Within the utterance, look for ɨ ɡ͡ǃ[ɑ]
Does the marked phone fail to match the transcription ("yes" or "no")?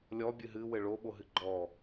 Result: yes